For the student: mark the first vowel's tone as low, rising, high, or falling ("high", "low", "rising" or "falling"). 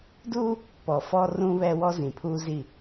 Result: high